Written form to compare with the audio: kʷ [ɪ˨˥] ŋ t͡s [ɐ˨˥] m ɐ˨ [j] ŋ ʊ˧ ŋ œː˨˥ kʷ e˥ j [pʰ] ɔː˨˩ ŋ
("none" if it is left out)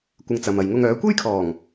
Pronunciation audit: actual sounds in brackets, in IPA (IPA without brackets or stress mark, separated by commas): ɪ˧, ɐ˨, j, kʰ